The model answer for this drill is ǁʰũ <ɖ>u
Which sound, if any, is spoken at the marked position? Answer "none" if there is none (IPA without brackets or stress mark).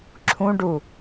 ɖ